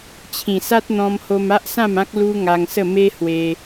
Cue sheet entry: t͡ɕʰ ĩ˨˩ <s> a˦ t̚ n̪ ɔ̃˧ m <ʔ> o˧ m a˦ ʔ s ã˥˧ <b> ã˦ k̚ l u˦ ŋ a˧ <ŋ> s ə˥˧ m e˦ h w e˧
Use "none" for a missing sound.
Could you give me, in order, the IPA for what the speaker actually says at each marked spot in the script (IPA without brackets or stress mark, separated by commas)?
s, h, m, ŋ